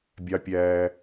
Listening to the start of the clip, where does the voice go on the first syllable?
high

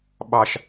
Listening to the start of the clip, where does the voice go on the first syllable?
low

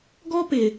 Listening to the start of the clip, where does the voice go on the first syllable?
high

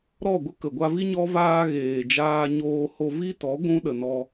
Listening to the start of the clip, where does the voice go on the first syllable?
falling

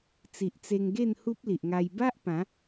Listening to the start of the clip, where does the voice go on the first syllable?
low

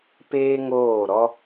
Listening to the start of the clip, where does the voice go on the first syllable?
high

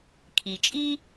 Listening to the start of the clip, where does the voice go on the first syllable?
low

